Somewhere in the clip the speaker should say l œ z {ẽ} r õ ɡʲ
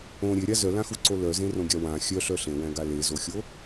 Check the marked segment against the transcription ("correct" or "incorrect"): correct